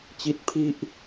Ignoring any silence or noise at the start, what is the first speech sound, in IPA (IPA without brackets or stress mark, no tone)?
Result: t͡ɕ